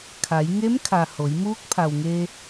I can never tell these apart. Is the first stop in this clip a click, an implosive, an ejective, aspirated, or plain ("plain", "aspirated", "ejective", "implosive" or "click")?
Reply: aspirated